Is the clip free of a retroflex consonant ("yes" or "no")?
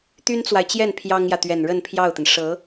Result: no